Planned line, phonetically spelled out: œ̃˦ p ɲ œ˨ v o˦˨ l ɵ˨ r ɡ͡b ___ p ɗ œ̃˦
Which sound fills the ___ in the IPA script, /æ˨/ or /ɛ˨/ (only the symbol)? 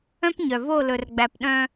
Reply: æ˨